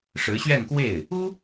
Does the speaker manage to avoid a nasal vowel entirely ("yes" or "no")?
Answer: yes